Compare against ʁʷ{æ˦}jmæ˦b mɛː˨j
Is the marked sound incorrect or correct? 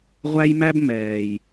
correct